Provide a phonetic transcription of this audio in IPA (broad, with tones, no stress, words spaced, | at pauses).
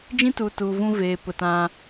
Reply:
d͡ʒĩ˦tuː˨ tu˨ vũ˦veː˨ pʊ˨tã˦